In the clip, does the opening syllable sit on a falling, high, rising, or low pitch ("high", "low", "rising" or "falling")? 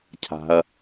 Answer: low